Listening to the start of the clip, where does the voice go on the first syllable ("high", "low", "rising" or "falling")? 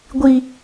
high